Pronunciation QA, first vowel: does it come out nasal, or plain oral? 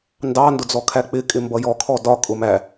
oral